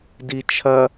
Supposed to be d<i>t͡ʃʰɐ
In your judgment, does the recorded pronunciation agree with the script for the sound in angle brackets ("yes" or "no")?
yes